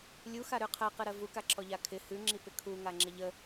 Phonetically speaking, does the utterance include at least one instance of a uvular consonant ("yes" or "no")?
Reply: yes